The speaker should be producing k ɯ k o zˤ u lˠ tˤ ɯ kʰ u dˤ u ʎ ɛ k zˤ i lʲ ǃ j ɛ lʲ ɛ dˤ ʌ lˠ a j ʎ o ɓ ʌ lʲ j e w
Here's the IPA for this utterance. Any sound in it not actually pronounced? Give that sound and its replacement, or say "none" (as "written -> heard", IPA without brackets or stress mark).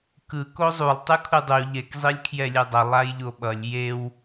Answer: ǃ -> kʰ